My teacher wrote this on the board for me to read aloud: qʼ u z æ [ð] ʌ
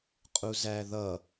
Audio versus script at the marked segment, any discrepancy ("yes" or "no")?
no